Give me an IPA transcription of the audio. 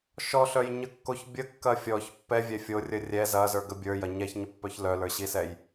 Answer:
ʃ ɔ ɬ œ j ɲ ə kː o ç bʲ ə kː ɐ fʲ ɔ ç pː ɛ vʲ ɛ fʲ o rʲ ə rʲ ɛ z ɐ z ə˞ ɡ ə bʲ ə˞ j ɐ ɲ ɛ ç ɲ ə pː œ ç l œ l ə˞ ɕ i s ɛ j

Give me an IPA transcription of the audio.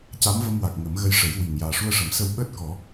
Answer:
c a˧˥ m v ə˧ m w a˨˩ k̚ ŋ ə˨˩˦ m ɣ ə˧ j ʂ ə˨˩˦ j w i˨˩ ŋ j aː˨˩ ʂ u˧ ə̯ ʂ ə˨˩˦ m s ə˧ w ɓ əː˦˥ t̚ k ɔ˨˩˦

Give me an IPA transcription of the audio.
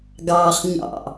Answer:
ɡ ɑː χ ɲ ɑ̰

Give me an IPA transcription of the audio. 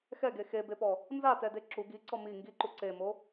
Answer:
x ɛ ɡ e x e b e p ɔ | n z a t ɛ d e ǁ u ɡ i ǀ ɔ m i ŋ ɡ i ǃ u ǀ e m o

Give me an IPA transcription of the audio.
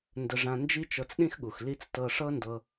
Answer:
n d ə˧ ʐ ã˧ n d͡ʒ i˦ t͡ʃ ɤ˧ t͡s ɗ ĩ˦ x ɠ u˨ x l i˦ t͡s t ɤ˧ ʂ ɤ˦ n d ɤ˧

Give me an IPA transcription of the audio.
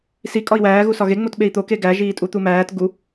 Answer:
s i kʼ ɒ i̯ w æː ɣ u s ɒ ɣ e ŋ͡m o t ɓ e i̯ t̪ o k e ɡ æ ʒ iː tʼ u t̪ u m æː t ɡ u

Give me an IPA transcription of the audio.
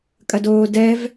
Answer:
kʼ ɐ d oː d ɛ v

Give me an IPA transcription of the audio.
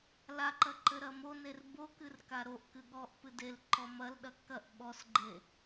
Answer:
l a ǃ ɐ ǃ ɘ ɾ ɐ m o n e r b o k ɨ r k a ɾ o ʔ k ɨ ɠ ɔ ʔ p ɨ d e l ǃ ɔ m ɐ l ɗ ɐ k ɐ ʔ ɓ ɔ s ɡ͡ǃ e

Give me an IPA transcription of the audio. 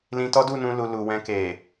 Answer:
l ĩ˧ t ɔ˦ d u˦˨ n ũ˧ l u˨ l u˨ w ɛ̃˧ k e˨

